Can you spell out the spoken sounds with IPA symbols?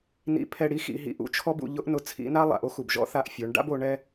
n ḭ˧ pʰ ɛ˧ ɽ i˧˥ x ḭ˧ ɦ ḭ˧ ʔ ṵ˧˥ t͡ʃʰ ɔ˥ b ṵ˧ ʎ ʊ˧˥ ʔ n ʊ˧ t͡sʰ ḭ˧˥ n a˥ lˠ a̰˩˧ ʔ o˥ x u˩ b ʒ ɔ̰˧˥ θ a˧ ʔ fʲ o˩˧ ɳ ɖ a̰˥ b o˩˧ ɳ ɛ˧

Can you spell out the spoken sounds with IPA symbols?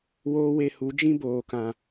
w oː˦ w e˧ h u˨˦ d͡ʒ ĩ˦ b oː˨ k ã˨

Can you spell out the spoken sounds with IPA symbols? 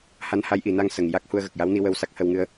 h a˧˥ n h a˧˥ j ʔ i˨˩˨ n a˧ ŋ s ə˨˩ ŋ j a˦˥ k̚ h u˧ ə̯ ɣ ə˨˩ k̚ j a˧˥ w n i˧ w ə˧ w s a˦˥ k̚ h ə˧ w ŋ ɨ˧ ə̯

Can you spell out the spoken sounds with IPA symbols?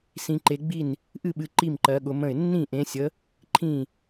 s ĩ˨˦ ǃ e˨˦ ɡ͡b i˥˩ n | ʔ ɨ˥˩ ɓ ɨ˨˦ ǃ i˥˩ m ǃ ɜ˨˦ ɠ ʊ˨˦ m ə̃˥˩ ɪ̯ nː ĩ˥˩ ʔ ẽ˨˦ sʲ ə˨˦ | ǃʰ ĩ˥˩

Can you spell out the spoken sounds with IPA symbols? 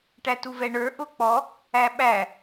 ʈ æ t u v ɛ ɳ ə˞ ʔ ʊ k͡p ɔ | æ ɓ æ

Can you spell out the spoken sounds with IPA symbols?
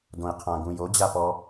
d õ i̯ qʰ ã ɡ ũ j o d͡ʑ a p ɔ

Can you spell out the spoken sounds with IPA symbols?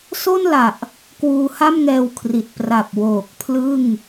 s o˥˩ n l a˨˩ ʔ | k w uː˧ h a˥˩ m ŋ ɛː˧ w kʰ r i˨˩ t̚ p r a˨˩ p̚ w oː˨˩ k̚ pʰ l ɯ˥˩ ŋ

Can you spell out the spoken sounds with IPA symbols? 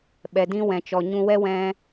ɓ ɛ˨ d ĩ˦ w ɛ̃˨ t͡ʃ ɔ˨ ɲ ũ˧ w ɛ˦ w ɛ̃˦

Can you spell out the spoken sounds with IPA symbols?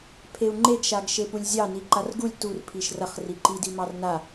pʰ e u̯ ŋ͡ǃ e ɡ ʃ a ɡ ʃ e p u lʲ zʲ ɑ n i ǃ a r ɡ u lʲ t u r pʰ i ʃ r ɐ χ r i ǃ i d i m ɑ r n a

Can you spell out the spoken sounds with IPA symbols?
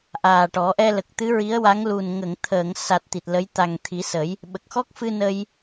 ʔ aː˨˩ ʈ ɔ˨˩˦ ʔ ɛ˧ l ə˨˩ k̚ t̪ ɨ˧˥ ɹ i˧˥ ə̯ w a˧˥ ŋ l u˨˩ n ŋ ə˨˩˨ ŋ t̪ʰ əː˨˩˨ ŋ s a˨˩ t̚ t̪ i˨˩ t̚ l ə˧˥ j t̪ a˨˩ ŋ t̪ʰ i˨˩˦ s ə˨˩˦ j | ɓ ə˨˩ k̚ x ɔ˦˥ k̚ f ɨ˧ n ə˧ j

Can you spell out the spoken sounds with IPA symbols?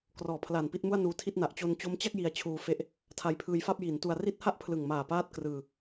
k r ɔː˨˩ pʰ l a˨˩ n p i˥˩ t̚ m u˥˩ a̯ n uː˧ tʰ i˥˩ t̚ n a˨˩ ʔ t͡ɕ o˧ n t͡ɕ o˦˥ m t͡ɕ a˥˩ k̚ j i˧ a̯ t͡ɕʰ uː˧ f e˦˥ ʔ | tʰ a˧ j pʰ ɯː˧ j f a˥˩ p̚ j i˩˦ n t u˧ a̯ r i˥˩ t̚ h a˥˩ ʔ pʰ l ɯ˨˩ ŋ m aː˨˩ p aː˥˩ t̚ k r ɯː˧

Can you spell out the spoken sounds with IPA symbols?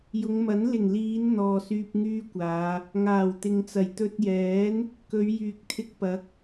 j ʊ˨˧ ŋ m ɐ˨˥ n l ɪ˨˩ ŋ l iː˨˧ n n̪ ɔː˨ s yː˧ p̚ ŋ yː˥ kʷ aː˨˧ | ŋ aː˨˩ w t̪ ɪ˨ ŋ t͡s ɐ˨˩ j t̪ ɵ˧ t̚ j ɛː˨˥ n | k ɵ˨˧ ɥ j yː˨ k̚ t̪ʰ ɪ˧ k̚ p ɐ˨˥ k̚

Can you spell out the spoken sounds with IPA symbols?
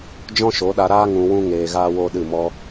d͡ʒ ɔ̃˦ ʃ o˨˦ ɗ a˧ ɾ aː˦ ŋ ũ˧ w ũ˦ ŋ eː˧ ɣ aː˦ w o˦ ɗ ɨ˦˨ m ɔ˦

